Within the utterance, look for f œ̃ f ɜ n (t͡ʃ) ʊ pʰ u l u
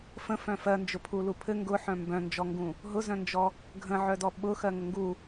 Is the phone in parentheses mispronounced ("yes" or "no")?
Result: yes